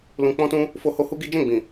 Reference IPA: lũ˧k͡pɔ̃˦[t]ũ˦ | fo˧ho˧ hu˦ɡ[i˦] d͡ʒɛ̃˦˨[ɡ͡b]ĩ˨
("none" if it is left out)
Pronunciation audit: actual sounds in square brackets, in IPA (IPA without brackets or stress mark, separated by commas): t, i˦, ɡ͡b